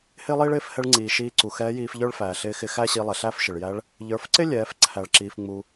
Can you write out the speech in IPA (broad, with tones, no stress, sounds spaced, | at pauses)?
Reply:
h ɪː˥ lˠ iː˥ ɭ ɪː˧˥ f h ɛ˧ ɭ ŋ͡ǀ iː˩ ʃ iː˧ ǀ u˩ x ɛː˧˥ j iː˧ f ʎ ə˞˥ ɭ f æː˩ ɬ ɪː˧˥ x ɪ˧ x æ˥ ɕ i˧ lˠ ɛ˩ ɬ æ˥ f ʃ ɪ˩ ɭ j æ˧˥ ɭ | ʎ ə˞˩˧ f ǀ ɪ˥ lʲ ɛː˩˧ f ǀʰ æ˩ ɭ ǁ iː˩ f ŋ͡m u˩